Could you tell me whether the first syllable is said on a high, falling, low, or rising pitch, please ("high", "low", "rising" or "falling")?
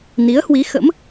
rising